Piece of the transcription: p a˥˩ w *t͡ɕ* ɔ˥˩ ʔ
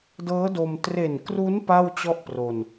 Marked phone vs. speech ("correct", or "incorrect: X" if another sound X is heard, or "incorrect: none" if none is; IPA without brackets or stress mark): correct